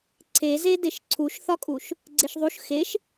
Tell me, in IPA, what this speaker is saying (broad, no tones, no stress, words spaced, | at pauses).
ǀʰeze deʃǀʰuʃθɒkʼuʃ | ɡ͡ǀeʃðˤuʃ xeʃ